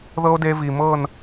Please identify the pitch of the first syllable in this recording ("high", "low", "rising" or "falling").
high